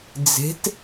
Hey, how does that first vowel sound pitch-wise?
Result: rising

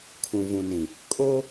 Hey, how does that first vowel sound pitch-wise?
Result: low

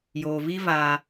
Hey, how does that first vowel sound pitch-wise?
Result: low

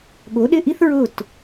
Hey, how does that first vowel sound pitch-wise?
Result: rising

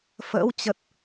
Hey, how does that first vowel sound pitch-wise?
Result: rising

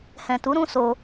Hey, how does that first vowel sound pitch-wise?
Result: low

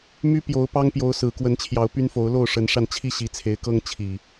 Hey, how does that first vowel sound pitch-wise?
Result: high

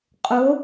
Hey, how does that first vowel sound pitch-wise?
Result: rising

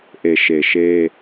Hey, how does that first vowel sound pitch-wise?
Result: low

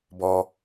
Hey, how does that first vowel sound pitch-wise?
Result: high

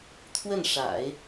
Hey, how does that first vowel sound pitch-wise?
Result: falling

